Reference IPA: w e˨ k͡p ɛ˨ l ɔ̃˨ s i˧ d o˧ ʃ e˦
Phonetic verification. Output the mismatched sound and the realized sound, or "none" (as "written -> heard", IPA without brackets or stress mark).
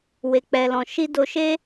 s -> ʃ